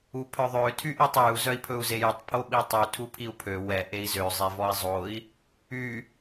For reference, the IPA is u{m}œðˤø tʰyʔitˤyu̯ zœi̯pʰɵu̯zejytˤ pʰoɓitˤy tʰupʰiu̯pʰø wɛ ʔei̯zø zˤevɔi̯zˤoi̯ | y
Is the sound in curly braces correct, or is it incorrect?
incorrect